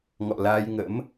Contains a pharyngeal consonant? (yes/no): no